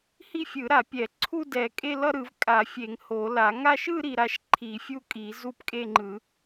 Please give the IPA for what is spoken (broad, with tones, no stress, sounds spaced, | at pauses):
h i˥˧ fʲ ɯ˨˩˦ ɾ a˨˩˦ pʲ ɛ˨˩˦ ǀʰ u˥˧ d ɛ˨˩˦ kʼ e˥˧ l ʌ˥˧ ɾ ɯ˨˩˦ v kʼ a˨˩˦ fʲ e˨˩˦ ŋ h o˨˩˦ l a˨˩˦ ŋ a˥˧ ʃ ɯ˥˧ ɾ i˥˧ ɾ a˥˧ ʃ ǃʰ i˨˩˦ fʲ u˥˧ kʼ i˨˩˦ z u˥˧ p kʼ e˥˧ ŋ͡ǃ ɯ˨˩˦